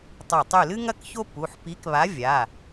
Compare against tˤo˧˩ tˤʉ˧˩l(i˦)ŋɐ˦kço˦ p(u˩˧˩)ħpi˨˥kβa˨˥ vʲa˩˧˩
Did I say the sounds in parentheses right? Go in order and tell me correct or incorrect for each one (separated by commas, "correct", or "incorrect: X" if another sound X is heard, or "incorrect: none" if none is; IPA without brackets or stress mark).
incorrect: ɨ˦, correct